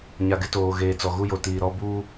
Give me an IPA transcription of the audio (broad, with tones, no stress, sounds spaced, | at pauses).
ɲ a˨ ɡ ɪ˦ t oː˨ ɣ eː˨ t͡s ɔ˨ ɣ u˦ j o˨ t iː˨ ɾ ɔ˦ b uː˦